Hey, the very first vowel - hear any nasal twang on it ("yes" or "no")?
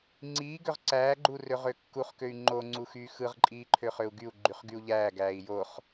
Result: no